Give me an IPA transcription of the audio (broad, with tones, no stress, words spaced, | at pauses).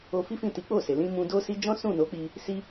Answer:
o˧fi˦fĩ˦˨ ti˨˦k͡po˦˨se˨ lĩ˧ mũ˧do˦si˦ d͡ʒɔ̃˦sũ˦˨no˨˦k͡pi˧ | si˧